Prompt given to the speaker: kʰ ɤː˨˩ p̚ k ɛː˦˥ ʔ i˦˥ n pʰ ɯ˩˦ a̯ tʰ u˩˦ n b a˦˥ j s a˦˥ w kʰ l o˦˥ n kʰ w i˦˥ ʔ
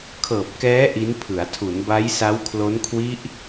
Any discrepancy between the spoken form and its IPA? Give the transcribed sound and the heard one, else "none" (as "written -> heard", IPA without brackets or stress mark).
none